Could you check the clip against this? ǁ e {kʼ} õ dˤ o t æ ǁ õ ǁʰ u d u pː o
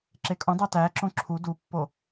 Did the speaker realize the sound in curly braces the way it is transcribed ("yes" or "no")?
yes